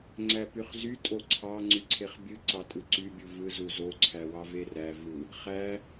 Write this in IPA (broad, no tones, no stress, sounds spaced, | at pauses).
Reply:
ŋ͡ǀ æ p y χ z y tʼ o ǀʰ ɑ ŋ͡ǀ y ǀʰ e χ bʲ ɯ ǀ ɑ tʼ ɯ ǀ y bʲ u v ɯ z u z o ǀʰ æ w ɑ v e r æ v ɯ | χ æ